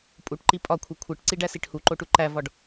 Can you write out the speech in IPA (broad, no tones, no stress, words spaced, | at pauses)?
pʼuʈǃi pʼɒkʷʰi kʷʰeʈǀiɖæsiʈ huǃoʈu ǃævɒɖ